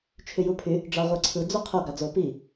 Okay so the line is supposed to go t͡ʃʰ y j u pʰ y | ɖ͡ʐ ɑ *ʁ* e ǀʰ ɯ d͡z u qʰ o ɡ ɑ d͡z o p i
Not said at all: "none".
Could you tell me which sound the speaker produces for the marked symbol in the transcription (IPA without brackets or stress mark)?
ʁʷ